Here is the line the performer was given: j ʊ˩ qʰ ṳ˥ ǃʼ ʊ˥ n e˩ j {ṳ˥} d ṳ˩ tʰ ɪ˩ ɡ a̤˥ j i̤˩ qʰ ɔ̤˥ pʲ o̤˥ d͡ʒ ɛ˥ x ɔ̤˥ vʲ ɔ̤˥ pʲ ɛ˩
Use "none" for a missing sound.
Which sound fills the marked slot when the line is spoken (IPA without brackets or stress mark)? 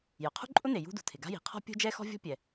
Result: ṳ˥